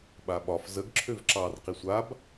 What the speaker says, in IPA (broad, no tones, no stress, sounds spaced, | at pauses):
ɓ a ɓ ɒ f z ə ɡ ǁʰ ø v ǁ ɑ r q i sʷ a b